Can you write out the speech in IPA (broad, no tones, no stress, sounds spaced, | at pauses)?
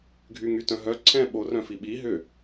ɡʱ y ŋ y t œ̃ ɦ œ ǀʰ ɛ̃ ɓ o r œ̃ f i ɓ i ɦ ʏ